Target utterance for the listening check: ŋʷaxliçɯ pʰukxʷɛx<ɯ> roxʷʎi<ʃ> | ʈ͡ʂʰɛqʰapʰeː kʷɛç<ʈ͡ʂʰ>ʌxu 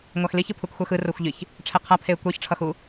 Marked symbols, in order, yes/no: yes, no, yes

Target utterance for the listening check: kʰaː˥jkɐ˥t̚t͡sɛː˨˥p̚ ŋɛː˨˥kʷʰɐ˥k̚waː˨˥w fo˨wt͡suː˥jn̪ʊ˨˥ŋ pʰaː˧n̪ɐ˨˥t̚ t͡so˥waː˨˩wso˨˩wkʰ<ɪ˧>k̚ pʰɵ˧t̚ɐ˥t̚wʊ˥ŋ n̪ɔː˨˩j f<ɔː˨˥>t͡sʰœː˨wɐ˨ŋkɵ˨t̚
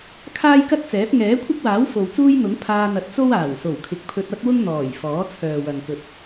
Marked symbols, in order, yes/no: no, yes

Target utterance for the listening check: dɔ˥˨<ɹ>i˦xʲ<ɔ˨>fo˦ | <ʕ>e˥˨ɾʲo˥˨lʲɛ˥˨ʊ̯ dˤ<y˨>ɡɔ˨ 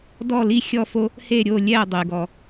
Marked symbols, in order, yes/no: no, no, no, yes

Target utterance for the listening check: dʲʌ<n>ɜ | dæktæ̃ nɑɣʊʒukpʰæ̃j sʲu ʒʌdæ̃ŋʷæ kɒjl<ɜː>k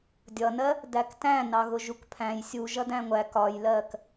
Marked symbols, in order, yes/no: yes, yes

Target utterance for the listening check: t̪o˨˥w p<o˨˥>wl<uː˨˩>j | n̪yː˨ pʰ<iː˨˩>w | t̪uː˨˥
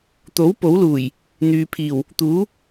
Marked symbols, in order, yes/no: yes, yes, yes

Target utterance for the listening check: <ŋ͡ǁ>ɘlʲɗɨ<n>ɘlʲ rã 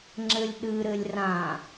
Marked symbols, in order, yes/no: yes, no

